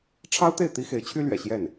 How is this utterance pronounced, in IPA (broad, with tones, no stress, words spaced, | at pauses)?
ʈ͡ʂʰɑ˥ʊ̯t̪e˥˩ɪ̯ t̪i˥xe˧˥ɪ̯t͡ɕʰy˥lɥɛ̰˨˩ ɕjɛ˥˩n